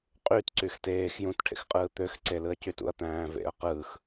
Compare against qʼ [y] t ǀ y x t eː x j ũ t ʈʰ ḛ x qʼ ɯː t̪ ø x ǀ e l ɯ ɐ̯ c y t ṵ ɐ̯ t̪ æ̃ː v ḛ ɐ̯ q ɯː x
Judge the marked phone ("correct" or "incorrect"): correct